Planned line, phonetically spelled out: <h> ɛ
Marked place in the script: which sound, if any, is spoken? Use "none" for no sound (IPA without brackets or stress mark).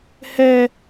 h